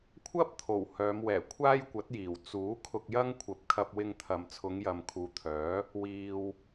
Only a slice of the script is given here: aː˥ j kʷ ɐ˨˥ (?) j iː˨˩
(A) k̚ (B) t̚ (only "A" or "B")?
B